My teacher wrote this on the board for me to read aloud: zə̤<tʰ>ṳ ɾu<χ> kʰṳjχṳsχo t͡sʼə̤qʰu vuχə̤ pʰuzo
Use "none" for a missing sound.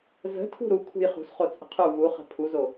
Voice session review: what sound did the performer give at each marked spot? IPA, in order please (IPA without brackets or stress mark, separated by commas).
tʰ, none